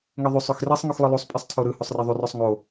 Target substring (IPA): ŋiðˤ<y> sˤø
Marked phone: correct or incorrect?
correct